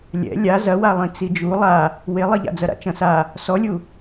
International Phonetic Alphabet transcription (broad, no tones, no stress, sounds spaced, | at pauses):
lʲ ɛ̰ lʲ a z ɐ w a lˠ ĩ t͡s i d͡ʒ u lˠ a | w e lˠ i ʎ a̰ d͡z ɐ ɾ a̰ t͡ʃ ɐ̃ s a | s ɔ lʲ u